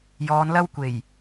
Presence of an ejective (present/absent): absent